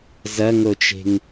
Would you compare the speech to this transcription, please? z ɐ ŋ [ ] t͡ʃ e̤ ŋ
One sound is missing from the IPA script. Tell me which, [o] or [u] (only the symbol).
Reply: o